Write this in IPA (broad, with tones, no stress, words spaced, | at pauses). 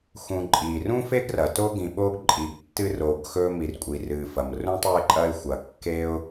xũ˨ǃʼi˩rũ˥fe˥ɡ rɐ˩to˥ ɡĩ˨ɓo˥ɡ ǃʼi˩ɡtːɨ˥ ro˨ɡxɵ˥ mi˨rkʷʼi˩rɨ˩fɐ˩m rũ˦tˤ o˦ɪ̯ǃʼɐ˦ɪ̯ xʷɐ˩kːe˦ʊ̯